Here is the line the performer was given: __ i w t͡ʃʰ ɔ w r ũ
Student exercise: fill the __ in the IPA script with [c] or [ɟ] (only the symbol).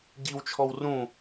ɟ